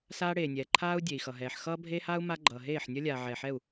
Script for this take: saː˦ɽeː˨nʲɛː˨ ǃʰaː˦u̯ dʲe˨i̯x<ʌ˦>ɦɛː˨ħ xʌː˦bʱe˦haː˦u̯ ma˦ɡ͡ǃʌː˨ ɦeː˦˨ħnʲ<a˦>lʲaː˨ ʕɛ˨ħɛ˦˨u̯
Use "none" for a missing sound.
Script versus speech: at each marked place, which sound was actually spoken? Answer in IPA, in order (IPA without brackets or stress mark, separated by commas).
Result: ʌ˨, ʌ˦